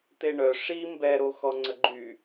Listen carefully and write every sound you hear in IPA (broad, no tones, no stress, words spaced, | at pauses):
t̪eɳœ ʂi mbɛɾoxɔ ŋ͡ǀəɡ͡ǃy